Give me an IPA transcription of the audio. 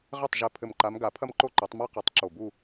ʁɘ˥˩tˤʒɘ˧˩ pʰɘ˧˩mǃa˨˦mɡa˨˩˦ pʰɐ˥mǃo˥˧ǃo˨˩˦tˤ ma˥qɘ˨˩˦tˤ ǁo˧˩bu˥˧

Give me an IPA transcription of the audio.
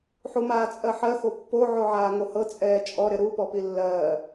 ħumaːt͡sʼɜħɜ xopːo ʕoʕaːŋohɤ t͡sʼɛːt͡ʃʼɔ ɾɪɾu pɔpilːɜː

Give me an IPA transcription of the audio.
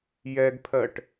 jɛɡpʰɜʈ

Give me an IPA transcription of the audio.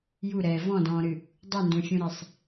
juɾɛː vɔ̃dɔ̃ːɾɨ | dˤundũfʲũɾesˤ

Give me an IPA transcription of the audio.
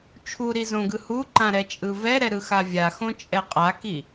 t͡ʃʰuɾizõɡɯ huǃãɾɛt͡ʃʼɯ vɛɾɛɾɯxa vʲaxõt͡ʃʼɛ qʼaki

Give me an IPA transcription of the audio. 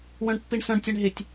wœ̃ɳpːiɳsœ̃ɳtʲɛɳ ɦɪtʲ

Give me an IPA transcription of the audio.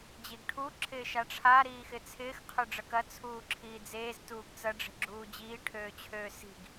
d͡ʑiɡʈʰu ǁʰɪːʃaʈ͡ʂʰa ɾiːxɪt͡sʰɪːx qʰøɖ͡ʐɐkɐ t͡sʰuːǁʰiːd͡zeːz tuːɡt͡sɐ ɖ͡ʐe̤ɡ͡ǁuːd͡ʑiː ʈʰøːt͡ɕʰøːsi̤ɡ

